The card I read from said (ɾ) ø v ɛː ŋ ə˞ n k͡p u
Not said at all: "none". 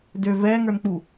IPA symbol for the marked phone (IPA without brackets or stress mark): d